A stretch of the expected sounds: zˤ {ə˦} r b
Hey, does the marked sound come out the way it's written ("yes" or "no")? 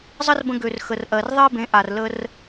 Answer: yes